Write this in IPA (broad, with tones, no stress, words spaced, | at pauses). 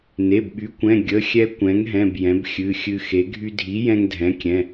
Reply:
ne˩˧˩bɓy˩˥kʷɛ̃˩˧˩ ɡʲə˩˧˩xʲɛ˧ kʷɛ̃˩˥ŋɦɛ̃˩˧˩b jɛ̃˩˥bxʲɨ˩˧˩xʲɨ˧xe˩˥ ɡʱy˧dʱi˩˥ jɛ̃˧ŋdʱɛ̃˩˥kʲɛ̃˩˧˩